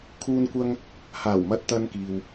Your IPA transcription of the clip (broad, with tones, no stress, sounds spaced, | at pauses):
kʰ uː˧ n kʷ ɐ˧ ŋ | h aː˨˩ w m ɐ˨ t̚ t̪ ɐ˨ n k iː˧ w